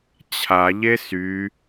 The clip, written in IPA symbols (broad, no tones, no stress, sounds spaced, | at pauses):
t͡ɕʰ a ʎ e s y